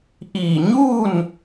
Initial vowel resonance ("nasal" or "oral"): oral